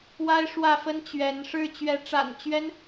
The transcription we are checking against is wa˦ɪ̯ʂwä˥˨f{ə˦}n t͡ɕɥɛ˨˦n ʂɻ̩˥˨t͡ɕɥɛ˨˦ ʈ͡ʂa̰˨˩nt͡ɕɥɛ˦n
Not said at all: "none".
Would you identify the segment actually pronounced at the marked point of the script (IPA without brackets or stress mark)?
ə˦